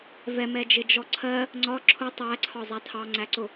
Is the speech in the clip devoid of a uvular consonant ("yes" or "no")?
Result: yes